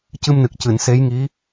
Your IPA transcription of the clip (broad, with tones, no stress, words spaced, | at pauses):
cɨ˧mnɨ˨˩k̚cɨ˨˩˨n se˧˥jŋi˧˥